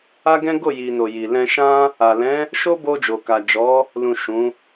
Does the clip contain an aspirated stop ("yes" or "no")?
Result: no